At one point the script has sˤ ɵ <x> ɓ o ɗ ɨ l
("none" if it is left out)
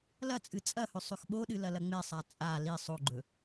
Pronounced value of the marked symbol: x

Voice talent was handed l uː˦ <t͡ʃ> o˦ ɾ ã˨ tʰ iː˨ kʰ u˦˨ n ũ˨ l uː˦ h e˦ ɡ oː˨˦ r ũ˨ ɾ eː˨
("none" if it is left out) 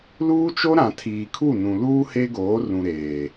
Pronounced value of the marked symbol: t͡ʃ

